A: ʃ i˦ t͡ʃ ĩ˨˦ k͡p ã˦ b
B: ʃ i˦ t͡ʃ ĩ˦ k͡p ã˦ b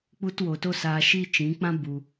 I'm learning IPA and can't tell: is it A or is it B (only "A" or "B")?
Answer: A